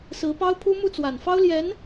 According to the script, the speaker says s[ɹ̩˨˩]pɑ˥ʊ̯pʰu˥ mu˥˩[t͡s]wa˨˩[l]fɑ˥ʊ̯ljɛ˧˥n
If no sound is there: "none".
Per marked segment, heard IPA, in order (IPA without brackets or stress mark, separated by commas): ɹ̩˧˥, t͡s, n